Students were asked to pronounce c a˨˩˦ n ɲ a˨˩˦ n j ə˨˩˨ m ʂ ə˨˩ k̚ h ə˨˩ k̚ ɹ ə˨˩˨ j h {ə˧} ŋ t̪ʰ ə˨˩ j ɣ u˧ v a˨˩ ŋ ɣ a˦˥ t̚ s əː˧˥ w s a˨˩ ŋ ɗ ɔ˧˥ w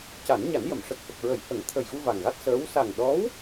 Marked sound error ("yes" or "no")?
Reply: yes